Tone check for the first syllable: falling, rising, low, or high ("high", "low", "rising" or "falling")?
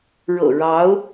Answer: low